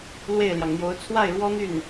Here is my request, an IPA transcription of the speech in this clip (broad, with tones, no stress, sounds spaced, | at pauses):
l w e˥˩ ɪ̯ l j ɑ˩ ŋ n̪ j o˧˥ ʊ̯ t͡sʰ w a˥˩ ɪ̯ ɻ w ɔ˥ n̪ y˥˩ n